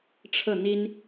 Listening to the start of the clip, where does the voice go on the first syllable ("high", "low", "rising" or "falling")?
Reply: falling